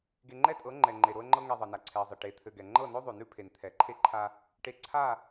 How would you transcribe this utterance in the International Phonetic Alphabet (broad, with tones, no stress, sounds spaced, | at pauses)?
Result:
ɡ e˨ ŋ͡ǃ ɛ˦ tʼ ɤ˨˦ ŋ͡ǃ ɛ˨ ŋ͡ǃ e˨ ɾ o˦ ə̯ ŋ͡ǃ ɤ˦ ŋ ɛ˨ ðˤ ɤ˨ n a˨ ǀʰ ɛ˨ ə̯ zˤ e˨ ʈ e˨˦ t̪ʰ ɘ˨ ɡ ɛ˨ ŋ͡ǃ ɤ˦˨ n o˦ ðˤ ʉ˨ n ʉ˦ pʰ e˨ n t̪ʰ ɛ˨˦ ǃʰ e˦ ǃʰ a˦ | ʈ e˨ ǀʰ a˦˨